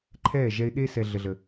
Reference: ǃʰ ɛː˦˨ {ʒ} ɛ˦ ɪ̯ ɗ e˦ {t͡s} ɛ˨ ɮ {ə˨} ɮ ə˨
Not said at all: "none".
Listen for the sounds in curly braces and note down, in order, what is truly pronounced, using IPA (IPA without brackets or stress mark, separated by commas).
ʒ, s, ə˨